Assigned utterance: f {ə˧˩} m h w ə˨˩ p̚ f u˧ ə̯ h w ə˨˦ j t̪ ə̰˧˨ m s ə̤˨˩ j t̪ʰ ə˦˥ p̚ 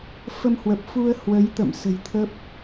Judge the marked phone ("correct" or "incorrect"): incorrect